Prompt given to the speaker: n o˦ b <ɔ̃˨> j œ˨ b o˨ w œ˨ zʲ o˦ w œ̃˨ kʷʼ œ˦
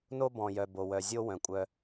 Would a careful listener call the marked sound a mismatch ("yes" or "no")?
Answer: no